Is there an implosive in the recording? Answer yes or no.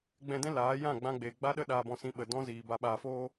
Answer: yes